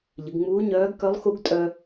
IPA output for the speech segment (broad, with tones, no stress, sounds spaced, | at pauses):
ʎ ə˩˧ ɡ ŋ͡m uː˧˥ ɲ œː˧˥ ɡ k œ˧˥ lˠ x u˧˥ ɡ tʼ œ˧